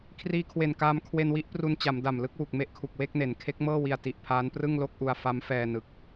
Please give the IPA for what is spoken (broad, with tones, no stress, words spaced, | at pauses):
kʰriː˧kʰwe˨˩nkaː˧mkʰwe˧n wi˦˥ʔpru˧nt͡ɕa˩˦mda˨˩m lɯ˥˩k̚wu˨˩k̚me˦˥ʔkʰu˨˩k̚ we˥˩k̚ne˩˦n kʰe˦˥k̚mɤː˥˩ wi˧a̯ti˨˩ʔpʰaː˦˥n prɯ˥˩ŋlo˥˩k̚ʔu˧a̯ fa˦˥mfɛː˧nɯ˨˩k̚